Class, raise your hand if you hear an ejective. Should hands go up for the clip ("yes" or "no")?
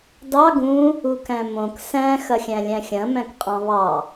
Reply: yes